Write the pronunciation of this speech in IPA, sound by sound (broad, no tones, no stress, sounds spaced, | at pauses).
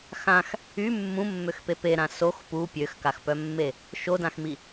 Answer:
x ã x | y mː ũ mː ø x p e p e ɾ ã s o x p u pʲ ø x k a x p œ mː e | ʃ o d ã x m i